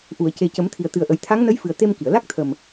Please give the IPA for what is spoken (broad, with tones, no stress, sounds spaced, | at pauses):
ʔ u˨˩˨ ə̯ c e˨˩ c ə˨˩˦ m t̪ʰ i˨˩ ə̯ t̪ ɨ˨˩ ə̯ ʔ ə˨˩˦ j t̪ʰ a˧˥ ŋ n ə˧˥ j f ɨ˨˩ ə̯ t̪ e˧ m k i˨˩˨ ə̯ l a˦˥ k̚ t̪ʰ ə˨˩ m